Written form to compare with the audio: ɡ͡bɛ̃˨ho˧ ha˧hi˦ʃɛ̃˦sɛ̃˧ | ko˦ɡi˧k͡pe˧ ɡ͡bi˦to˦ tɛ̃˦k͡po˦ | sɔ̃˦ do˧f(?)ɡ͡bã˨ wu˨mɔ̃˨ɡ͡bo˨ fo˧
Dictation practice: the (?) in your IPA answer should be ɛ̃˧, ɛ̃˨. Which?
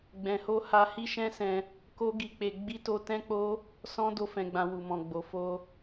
ɛ̃˨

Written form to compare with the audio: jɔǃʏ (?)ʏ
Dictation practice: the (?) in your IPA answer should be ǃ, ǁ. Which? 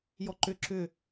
ǁ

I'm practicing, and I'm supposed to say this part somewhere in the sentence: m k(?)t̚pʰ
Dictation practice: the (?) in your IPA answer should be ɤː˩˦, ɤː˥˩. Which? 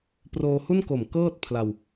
ɤː˥˩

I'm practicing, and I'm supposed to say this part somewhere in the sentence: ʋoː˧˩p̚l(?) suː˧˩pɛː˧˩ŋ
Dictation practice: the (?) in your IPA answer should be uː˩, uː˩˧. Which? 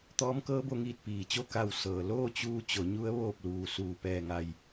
uː˩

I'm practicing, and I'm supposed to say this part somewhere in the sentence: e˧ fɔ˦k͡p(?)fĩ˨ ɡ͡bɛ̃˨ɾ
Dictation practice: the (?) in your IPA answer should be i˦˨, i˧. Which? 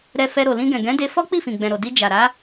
i˦˨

